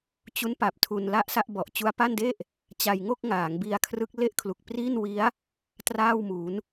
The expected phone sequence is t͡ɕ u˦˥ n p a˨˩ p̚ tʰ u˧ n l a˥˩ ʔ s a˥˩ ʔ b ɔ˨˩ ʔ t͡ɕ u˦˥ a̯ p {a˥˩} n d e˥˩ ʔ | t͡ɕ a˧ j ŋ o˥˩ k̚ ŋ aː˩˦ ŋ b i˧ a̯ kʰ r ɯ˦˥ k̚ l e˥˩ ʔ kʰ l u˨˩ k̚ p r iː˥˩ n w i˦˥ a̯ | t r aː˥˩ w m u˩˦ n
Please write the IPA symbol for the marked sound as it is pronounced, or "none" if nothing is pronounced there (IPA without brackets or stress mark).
a˥˩